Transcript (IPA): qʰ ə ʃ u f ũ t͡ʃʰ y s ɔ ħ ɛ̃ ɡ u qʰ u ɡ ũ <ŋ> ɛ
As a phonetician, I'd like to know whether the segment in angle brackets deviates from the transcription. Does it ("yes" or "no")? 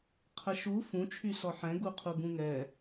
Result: no